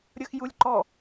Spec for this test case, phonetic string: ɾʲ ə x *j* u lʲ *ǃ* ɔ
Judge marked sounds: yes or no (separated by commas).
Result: yes, yes